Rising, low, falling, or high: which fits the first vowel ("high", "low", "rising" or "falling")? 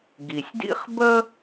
low